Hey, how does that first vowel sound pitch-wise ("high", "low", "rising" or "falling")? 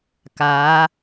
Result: rising